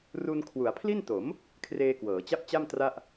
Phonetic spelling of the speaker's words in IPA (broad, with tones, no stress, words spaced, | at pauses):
ru˧n kʰwu˩˦a̯pʰli˥˩n to˩˦m | kʰreː˧kwɤː˩˦t͡ɕa˥˩p̚t͡ɕa˥˩m tra˥˩ʔ